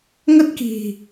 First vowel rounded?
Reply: no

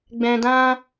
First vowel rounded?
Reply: no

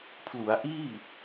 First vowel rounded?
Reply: yes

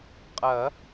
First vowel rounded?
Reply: no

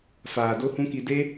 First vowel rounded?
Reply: no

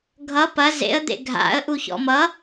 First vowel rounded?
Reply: no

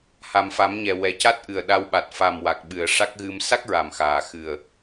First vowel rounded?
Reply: no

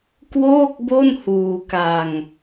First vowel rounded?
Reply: yes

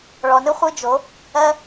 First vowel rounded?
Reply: yes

